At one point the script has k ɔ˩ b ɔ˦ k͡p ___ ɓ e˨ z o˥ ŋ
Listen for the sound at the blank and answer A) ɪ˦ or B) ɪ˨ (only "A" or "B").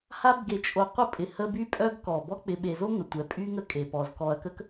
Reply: B